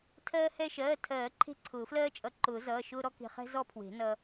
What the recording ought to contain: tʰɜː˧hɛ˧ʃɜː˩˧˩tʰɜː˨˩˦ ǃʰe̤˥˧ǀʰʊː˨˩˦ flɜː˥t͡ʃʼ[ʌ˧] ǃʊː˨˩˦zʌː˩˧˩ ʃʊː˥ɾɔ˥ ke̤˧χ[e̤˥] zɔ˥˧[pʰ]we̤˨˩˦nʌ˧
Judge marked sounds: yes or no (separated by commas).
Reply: yes, no, yes